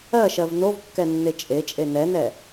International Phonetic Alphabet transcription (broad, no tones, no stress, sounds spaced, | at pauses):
ɜ ʃ ɜ v n o v kː ɛ nː e t͡ʃʼ e t͡ʃʼ e n ɛ n ɛ